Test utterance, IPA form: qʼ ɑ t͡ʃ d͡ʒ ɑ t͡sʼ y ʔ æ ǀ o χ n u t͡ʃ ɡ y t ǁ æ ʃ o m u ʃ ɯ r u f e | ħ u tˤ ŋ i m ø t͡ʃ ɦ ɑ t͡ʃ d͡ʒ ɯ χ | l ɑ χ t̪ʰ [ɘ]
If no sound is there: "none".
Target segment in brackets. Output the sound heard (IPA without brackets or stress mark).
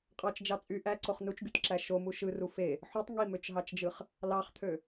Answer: ø